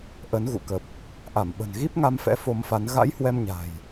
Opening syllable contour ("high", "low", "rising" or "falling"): rising